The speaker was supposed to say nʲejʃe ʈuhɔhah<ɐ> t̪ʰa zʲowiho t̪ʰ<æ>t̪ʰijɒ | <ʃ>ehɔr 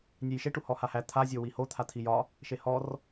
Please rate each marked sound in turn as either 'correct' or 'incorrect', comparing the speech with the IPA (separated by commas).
incorrect, incorrect, correct